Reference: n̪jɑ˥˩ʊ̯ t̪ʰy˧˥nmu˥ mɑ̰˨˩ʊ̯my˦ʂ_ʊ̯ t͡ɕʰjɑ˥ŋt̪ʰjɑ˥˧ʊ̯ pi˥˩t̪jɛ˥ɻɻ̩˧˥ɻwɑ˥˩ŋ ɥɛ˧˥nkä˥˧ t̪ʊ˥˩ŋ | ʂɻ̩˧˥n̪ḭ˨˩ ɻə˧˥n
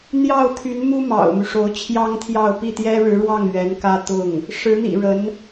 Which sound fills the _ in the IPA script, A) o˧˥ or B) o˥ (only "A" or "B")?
A